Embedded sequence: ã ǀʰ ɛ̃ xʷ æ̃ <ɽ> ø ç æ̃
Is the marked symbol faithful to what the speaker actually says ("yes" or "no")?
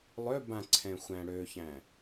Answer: yes